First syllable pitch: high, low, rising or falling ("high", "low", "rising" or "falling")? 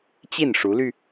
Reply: falling